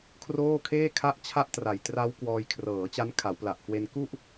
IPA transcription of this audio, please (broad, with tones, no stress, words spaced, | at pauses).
kʰroː˥˩kʰeː˥˩ kʰa˥˩ʔt͡ɕʰa˥˩ʔtra˨˩jtra˦˥w kwɔː˧jkʰrɤː˩˦t͡ɕa˦˥n kʰa˩˦wpla˨˩ʔkwe˧n ku˥˩ʔ